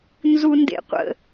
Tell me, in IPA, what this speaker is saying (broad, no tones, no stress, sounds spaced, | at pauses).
n z u n d ḛ qʷ ə̰